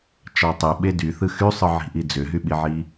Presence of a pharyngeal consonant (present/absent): present